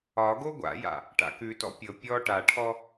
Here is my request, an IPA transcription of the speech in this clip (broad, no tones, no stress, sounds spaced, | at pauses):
ɒ ɡ o ɡʷ a̰ j a̰ | ʈ a̰ k ʉ t ɔ̰ pʲ ɤ pʲ ɔ ʈ a ʈʰ ɔ